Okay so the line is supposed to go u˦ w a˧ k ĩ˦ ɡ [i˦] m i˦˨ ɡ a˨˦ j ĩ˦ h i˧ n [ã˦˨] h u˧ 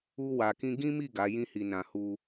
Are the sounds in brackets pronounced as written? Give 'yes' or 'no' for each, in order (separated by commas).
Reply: no, no